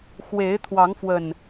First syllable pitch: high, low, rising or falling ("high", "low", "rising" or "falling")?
rising